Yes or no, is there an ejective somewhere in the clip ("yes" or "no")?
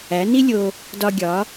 no